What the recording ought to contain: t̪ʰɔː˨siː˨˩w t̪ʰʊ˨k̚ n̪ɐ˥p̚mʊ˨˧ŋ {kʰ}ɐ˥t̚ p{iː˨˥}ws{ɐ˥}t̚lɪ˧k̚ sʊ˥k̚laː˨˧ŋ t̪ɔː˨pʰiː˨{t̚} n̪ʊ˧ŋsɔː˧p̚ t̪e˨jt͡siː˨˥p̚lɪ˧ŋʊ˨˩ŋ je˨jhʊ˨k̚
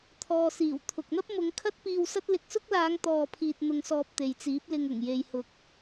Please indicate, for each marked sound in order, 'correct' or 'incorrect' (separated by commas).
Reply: correct, incorrect, correct, correct